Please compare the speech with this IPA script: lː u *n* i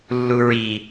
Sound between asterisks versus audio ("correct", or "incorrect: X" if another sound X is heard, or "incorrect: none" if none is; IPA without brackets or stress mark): incorrect: ɹ